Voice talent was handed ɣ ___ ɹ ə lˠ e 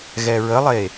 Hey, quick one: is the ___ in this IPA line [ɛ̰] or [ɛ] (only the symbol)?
ɛ